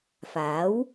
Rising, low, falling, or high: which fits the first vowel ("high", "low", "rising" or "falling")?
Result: rising